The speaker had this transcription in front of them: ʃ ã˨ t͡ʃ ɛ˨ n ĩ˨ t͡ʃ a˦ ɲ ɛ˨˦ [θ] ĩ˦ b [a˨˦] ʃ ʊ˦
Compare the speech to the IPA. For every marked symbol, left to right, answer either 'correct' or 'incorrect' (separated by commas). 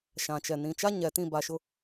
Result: incorrect, correct